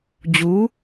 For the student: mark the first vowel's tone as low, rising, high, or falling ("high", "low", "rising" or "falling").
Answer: rising